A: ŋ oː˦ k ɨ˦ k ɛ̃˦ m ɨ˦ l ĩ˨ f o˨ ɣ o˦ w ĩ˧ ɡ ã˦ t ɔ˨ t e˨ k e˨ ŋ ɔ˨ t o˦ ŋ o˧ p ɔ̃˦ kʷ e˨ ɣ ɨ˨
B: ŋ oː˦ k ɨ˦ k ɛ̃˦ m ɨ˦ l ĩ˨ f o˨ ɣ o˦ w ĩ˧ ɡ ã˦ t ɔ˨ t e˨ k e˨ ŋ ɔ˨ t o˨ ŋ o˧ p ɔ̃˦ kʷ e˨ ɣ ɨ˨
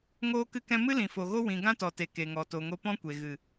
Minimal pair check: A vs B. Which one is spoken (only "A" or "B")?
B